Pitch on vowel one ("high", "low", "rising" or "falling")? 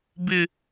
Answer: high